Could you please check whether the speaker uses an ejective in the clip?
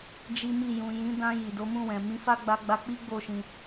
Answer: no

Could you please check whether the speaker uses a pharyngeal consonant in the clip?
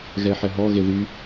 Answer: yes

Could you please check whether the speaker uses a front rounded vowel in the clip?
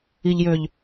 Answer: yes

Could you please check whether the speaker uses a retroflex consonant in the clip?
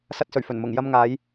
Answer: no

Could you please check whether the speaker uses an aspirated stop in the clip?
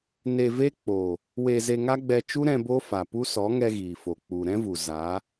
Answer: no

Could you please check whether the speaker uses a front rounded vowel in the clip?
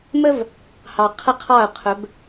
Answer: no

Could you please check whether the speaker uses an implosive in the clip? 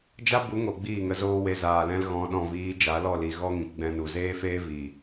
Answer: yes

